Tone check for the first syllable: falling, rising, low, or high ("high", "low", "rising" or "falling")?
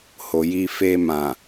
low